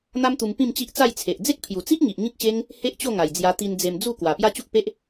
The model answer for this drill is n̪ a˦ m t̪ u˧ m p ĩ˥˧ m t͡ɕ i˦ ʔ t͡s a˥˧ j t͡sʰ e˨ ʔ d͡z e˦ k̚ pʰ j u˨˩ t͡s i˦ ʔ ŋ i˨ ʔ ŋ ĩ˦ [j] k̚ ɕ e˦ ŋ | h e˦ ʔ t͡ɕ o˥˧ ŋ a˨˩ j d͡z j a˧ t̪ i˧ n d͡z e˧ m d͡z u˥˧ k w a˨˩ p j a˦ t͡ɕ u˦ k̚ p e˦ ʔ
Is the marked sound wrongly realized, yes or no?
yes